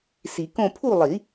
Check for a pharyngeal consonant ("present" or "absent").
absent